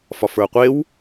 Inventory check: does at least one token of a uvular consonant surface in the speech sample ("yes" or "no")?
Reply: yes